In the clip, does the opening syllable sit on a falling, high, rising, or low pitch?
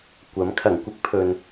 rising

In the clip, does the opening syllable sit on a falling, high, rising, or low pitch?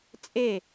falling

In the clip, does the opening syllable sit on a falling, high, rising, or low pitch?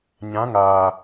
rising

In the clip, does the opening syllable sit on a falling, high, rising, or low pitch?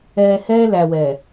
low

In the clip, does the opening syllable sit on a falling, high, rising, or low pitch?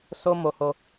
high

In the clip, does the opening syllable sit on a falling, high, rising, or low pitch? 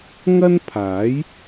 high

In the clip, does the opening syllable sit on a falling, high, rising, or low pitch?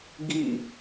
falling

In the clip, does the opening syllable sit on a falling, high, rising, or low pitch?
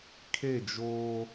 falling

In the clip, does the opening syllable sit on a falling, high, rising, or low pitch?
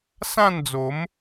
falling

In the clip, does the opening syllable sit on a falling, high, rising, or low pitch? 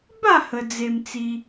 falling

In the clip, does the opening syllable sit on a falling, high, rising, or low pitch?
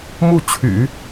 falling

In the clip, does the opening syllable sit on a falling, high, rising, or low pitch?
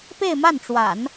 falling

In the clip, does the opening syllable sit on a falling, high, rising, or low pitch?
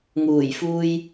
low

